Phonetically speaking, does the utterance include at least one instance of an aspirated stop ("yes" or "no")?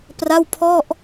yes